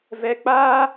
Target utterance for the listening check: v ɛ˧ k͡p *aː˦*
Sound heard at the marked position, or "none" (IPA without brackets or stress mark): aː˦